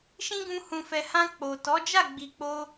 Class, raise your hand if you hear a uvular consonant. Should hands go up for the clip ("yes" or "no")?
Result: no